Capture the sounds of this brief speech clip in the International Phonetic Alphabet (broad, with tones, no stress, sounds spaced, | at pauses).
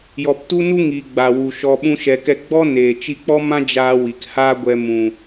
j ɔ˨ p t u˦ n u˦ ŋ i˨ ɡ͡b a˨ w u˨ ʃ ɔ˧ ɓ ũ˦ ʃ ɛ˧ k ɛ˦ ɡ͡b ɔ˦ n eː˨ t͡ʃ i˧ k͡p ɔ˦ m ã˦ d͡ʒ aː˧ w i˨ k h a˦ ɡʷ ɛ˧ m ũ˨